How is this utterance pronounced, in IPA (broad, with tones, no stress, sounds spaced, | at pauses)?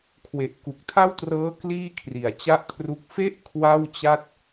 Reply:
kʰ w e˨˩ ʔ k u˨˩ k̚ tʰ a˥˩ w t r ɤː˦˥ k l iː˥˩ kʰ r i˩˦ a̯ t͡ɕ a˥˩ ʔ kʰ r u˦˥ k̚ f e˦˥ ʔ kʰ w a˥˩ w t͡ɕ a˥˩ t̚